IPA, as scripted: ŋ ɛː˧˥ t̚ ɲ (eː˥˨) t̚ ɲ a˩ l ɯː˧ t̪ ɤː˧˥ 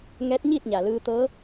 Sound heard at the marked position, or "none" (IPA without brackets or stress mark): iː˥˨